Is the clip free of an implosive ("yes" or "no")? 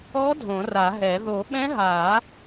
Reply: no